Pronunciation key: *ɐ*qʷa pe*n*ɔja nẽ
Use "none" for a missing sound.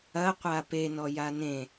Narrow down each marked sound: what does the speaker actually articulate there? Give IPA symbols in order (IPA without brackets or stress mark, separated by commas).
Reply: ɐ, n